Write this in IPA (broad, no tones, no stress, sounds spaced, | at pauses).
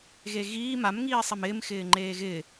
ɣ e ɣ iː m a m ŋ iː sˤ ɪ m ɪː m x ɪː ŋ͡ǃ eː ɣ ɪ